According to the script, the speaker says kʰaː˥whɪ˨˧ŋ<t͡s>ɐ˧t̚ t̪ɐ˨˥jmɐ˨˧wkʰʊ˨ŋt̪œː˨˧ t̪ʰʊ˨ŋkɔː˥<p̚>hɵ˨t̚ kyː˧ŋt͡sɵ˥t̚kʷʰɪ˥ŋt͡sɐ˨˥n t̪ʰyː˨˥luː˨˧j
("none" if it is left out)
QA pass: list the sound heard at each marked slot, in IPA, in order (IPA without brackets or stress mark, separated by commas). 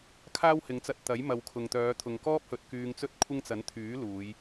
t͡s, p̚